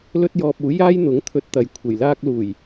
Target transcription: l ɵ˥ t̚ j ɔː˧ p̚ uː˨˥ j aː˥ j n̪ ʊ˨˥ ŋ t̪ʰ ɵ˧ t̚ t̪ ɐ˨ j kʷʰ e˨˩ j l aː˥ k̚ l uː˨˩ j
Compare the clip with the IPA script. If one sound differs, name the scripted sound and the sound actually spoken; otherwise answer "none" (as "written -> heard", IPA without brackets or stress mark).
none